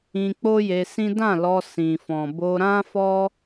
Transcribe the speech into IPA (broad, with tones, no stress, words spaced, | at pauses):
ĩ˧k͡po˦je˧sĩ˦ dã˦˨lɔ˧ sĩ˨fɔ̃˨ bo˧ɾã˦fɔ˦